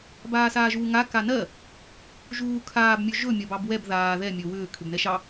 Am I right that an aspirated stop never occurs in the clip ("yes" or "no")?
no